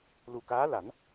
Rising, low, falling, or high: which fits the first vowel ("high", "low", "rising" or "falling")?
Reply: low